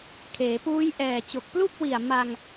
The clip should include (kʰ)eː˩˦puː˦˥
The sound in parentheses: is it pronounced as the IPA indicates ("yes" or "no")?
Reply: yes